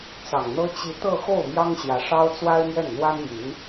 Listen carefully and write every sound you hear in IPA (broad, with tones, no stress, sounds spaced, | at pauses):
t͡s ɑ˨˩ ŋ n̪ ɤ˥ t͡ɕ i˧˥ t̪ ɤ˥˧ x o˥˩ ʊ̯ m j ɑ˥ ŋ ɕ j ä˧˥ ʂ ɑ˥ ʊ̯ t͡s w a˥ ɪ̯ m ɥ ɛ˥˩ n n̪ w a˥ n m y˧˥ n